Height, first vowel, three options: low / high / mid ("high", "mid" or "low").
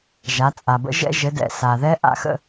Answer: low